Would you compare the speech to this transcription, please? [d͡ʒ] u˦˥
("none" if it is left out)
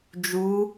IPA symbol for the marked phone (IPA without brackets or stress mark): d͡ʒ